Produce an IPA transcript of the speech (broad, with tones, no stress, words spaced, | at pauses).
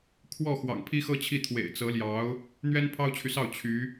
kʰwɔ˥˩ xwɑ̰˨˩ŋpʰi˥xɤ˥t͡ɕʰi˥˩ t̪ʰwḛ˨˩ɪ̯t͡sɤ˧˥ljɑ˧˥ʊ̯ | n̪ɥɛ˥npʰɑ˥ʊ̯t͡ɕʰy˨sɑ˥˩ʊ̯ t͡ɕʰy˧˥